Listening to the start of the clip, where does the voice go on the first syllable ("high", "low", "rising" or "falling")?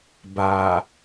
low